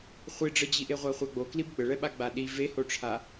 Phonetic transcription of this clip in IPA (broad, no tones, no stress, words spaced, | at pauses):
χʷiɖ͡ʐɤd͡ʑiʔe ʁʷaχʷaɡ͡boklib ɡ͡bəɭɛɓa ɡ͡baɗi vehoʈ͡ʂʰa